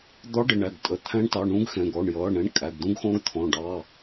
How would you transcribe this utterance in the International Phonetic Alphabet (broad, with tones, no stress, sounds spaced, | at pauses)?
d̪ ɔ˧˥ ɖ ɪ˩˧˩ ɳ æ˩˧˩ ɡ tʼ ə˩˧˩ t̪ʰ æ̃˧˥ ɳ t ɑ˩˧˩ ɳ ũ˧˥ ɡ x ɛ̃˩˧˩ ɡ ɔ˩˧˩ ɳ j ʌː˩˧˩ ɳ ɛ̃˧˥ ɳ kʼ æ˩˧˩ ɡ d̪ ũ˧˥ ɡ x ɔ̃˧˥ ɡ t̪ʰ ɔ̃˩˧˩ ɖ ɑ˩˧˩